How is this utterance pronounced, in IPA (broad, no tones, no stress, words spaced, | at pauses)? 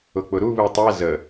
ʊk͡pʊɾu βɨtˤɛ zə